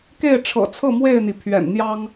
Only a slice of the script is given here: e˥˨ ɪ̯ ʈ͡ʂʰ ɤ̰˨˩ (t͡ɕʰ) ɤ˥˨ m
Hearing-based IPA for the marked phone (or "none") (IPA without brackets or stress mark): t͡sʰ